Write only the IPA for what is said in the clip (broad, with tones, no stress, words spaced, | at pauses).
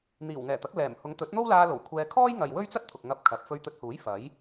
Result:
n̪iː˨˩wŋɛː˨˩t̪ɐ˨˥k̚ lɛː˨˩m hʊ˨˧ŋt̪ɵ˨˥t̚n̪o˥wlaː˧ lo˨˩wkʷʰɛː˧ kʰɔː˥jŋɐ˨j wɵ˥ɥt͡sɐ˥t̚t̪ʰʊ˨k̚ ŋɐ˧p̚ kʰɐ˨˥p̚ fɵ˧ɥt̪ɵ˧t̚huː˨˥j fɐ˨˥j